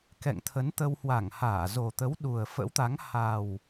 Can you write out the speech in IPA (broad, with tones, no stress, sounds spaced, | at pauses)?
k ɛ̰˧˨ ŋ t̪ʰ ə˨˦ n t̪ ə˧ w h w a˧˩ ŋ h aː˧˩ z o˨˩ t̪ ə˨˦ w ɗ u˨˩ ə̯ f ə̰˧˥ w t̪ a˨˦ ŋ h a˨˩ w